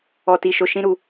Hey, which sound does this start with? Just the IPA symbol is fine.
ɔ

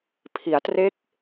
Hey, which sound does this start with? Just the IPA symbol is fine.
pʰ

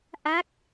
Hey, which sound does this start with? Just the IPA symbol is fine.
ʔ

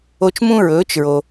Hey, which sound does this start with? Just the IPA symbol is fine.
o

